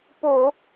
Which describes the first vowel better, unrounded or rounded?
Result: rounded